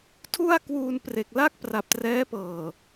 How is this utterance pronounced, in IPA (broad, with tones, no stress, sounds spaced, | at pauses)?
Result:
tʰ u˥˩ a̯ k w uː˧ n p r e˨˩ k̚ l a˥˩ k̚ p r a˨˩ p̚ t r ɛː˦˥ p ɤː˨˩